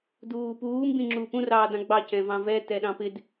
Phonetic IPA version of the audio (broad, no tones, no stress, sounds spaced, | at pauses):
d uː p uː m b ĩ ŋ͡ǁ uː p ũ r ɑː d ɑ̃ ɡ͡b ɑ c ɛ̃ v ɑ̃ v ɛ t ɛ ɗ ɑ̃ p ɪ d